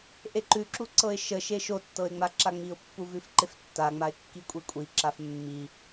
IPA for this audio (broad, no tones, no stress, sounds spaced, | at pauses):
ʔ e ǃ ʉ ǁ u ǀ ɤ ɪ̯ ʃ ə ʃ e ʃ o tː ɤ ɪ̯ ŋ͡m a ǁ a ŋ͡m i ʊ̯ pː u v ʉ f ǃ e f tː a ŋ͡m a ɪ̯ kː i kʷʼ i kʷʼ i ǁ a f mː i